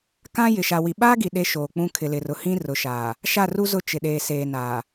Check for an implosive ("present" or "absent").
present